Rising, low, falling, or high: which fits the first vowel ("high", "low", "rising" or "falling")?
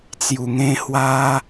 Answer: low